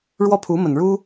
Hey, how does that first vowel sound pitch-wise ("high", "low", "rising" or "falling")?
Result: falling